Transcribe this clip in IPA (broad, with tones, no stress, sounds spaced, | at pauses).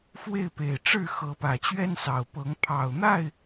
f w e˥˨ ɪ̯ p e˨˩ ɪ̯ ʈ͡ʂ ɻ̩˥˨ x ɤ˨˦ p ä˨˩ t͡ɕ ɥ ɛ˦ n s ɑ˨˩ ʊ̯ p ɤ˨˦ ŋ pʰ ɑ˨˩ ʊ̯ n̪ a˥˨ ɪ̯